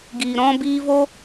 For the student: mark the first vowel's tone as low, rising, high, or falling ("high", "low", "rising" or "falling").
low